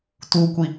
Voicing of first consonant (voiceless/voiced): voiceless